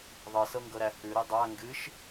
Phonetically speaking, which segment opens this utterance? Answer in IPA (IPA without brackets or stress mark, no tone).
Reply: ðˤ